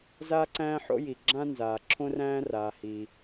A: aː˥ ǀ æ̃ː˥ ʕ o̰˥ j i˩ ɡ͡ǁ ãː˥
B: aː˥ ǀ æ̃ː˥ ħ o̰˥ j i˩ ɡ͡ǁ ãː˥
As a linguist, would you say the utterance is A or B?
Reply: B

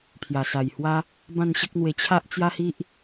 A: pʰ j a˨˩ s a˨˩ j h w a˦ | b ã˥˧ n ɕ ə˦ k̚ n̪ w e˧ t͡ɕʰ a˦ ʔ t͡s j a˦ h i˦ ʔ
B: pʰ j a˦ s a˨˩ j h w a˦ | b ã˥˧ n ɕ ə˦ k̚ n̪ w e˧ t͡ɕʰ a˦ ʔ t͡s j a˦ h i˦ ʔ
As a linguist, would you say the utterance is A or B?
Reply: A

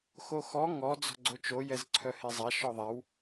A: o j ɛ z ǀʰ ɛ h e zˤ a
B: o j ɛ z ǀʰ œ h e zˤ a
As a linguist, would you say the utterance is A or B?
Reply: B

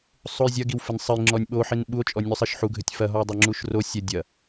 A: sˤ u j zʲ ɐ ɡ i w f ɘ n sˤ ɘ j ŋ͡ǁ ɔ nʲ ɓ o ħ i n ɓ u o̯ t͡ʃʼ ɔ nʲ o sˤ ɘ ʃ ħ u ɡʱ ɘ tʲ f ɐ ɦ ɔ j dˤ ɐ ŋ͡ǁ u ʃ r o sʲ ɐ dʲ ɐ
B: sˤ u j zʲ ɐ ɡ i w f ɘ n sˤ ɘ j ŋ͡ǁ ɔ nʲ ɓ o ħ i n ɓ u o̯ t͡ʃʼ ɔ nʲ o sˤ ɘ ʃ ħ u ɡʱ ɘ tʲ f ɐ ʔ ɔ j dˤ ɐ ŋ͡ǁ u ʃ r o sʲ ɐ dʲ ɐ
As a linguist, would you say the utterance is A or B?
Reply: A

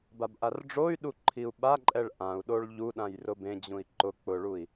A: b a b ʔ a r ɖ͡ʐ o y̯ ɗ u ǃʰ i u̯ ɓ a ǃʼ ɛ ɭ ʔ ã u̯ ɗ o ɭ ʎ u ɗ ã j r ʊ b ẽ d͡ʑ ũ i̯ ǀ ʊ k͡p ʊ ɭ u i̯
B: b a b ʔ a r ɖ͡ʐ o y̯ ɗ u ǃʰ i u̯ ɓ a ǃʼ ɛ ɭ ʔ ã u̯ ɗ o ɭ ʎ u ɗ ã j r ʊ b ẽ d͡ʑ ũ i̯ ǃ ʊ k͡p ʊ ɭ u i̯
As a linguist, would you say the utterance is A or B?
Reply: B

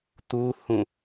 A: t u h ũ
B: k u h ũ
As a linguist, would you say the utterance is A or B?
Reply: A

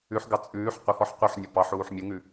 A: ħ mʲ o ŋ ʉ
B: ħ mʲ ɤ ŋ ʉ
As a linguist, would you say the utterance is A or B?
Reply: A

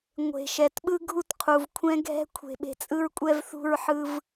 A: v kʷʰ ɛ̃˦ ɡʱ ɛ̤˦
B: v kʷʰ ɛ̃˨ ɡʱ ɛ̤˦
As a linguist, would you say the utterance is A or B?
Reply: A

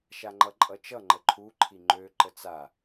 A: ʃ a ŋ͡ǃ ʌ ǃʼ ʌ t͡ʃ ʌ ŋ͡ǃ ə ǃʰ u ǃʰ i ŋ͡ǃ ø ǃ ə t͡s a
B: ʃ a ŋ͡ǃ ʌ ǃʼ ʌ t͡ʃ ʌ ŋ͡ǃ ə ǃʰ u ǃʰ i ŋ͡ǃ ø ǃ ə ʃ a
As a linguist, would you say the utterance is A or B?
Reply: A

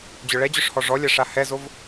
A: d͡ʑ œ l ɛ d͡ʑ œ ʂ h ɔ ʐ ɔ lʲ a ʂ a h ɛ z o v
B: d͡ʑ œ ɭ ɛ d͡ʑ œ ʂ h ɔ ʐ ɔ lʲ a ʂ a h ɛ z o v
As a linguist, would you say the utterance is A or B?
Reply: B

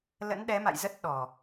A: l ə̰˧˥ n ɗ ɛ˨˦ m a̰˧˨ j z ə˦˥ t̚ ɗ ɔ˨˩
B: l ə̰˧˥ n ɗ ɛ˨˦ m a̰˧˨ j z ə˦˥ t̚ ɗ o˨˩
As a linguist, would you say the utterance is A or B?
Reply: A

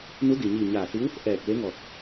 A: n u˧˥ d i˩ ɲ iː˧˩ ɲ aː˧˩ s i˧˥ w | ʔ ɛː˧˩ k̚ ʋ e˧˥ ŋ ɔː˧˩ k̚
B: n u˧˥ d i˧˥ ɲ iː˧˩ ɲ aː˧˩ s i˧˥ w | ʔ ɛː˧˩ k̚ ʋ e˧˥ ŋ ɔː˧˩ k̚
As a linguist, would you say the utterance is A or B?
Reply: A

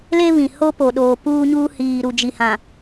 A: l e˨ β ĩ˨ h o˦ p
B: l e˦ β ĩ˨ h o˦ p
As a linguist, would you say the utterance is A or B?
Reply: B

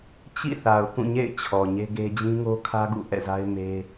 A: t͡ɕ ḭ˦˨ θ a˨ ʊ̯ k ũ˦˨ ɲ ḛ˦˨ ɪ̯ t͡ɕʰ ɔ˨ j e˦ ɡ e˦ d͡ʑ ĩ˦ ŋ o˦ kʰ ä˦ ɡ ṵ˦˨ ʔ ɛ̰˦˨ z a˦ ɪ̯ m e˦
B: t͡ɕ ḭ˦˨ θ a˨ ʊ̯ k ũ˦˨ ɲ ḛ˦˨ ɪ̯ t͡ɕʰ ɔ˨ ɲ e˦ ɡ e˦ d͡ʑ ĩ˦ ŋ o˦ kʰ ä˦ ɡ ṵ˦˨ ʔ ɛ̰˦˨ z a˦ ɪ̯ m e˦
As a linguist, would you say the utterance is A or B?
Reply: B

